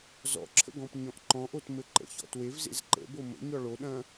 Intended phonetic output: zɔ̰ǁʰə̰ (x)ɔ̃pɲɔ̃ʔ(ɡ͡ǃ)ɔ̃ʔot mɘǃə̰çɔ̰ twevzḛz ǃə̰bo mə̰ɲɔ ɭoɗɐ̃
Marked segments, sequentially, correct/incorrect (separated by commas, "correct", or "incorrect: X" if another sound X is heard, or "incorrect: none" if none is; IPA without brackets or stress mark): incorrect: ɡ, incorrect: ǃ